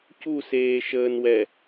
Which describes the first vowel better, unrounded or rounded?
rounded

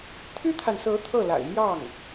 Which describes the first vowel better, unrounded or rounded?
rounded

